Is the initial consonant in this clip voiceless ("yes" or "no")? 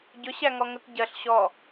no